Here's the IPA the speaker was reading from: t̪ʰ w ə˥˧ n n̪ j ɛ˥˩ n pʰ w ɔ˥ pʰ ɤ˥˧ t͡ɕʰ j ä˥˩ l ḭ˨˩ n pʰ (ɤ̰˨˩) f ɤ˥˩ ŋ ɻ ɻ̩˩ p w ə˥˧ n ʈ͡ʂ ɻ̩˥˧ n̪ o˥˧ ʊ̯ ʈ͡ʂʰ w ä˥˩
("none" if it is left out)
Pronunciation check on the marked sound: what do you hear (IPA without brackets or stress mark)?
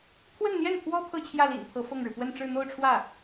ɤ˧˥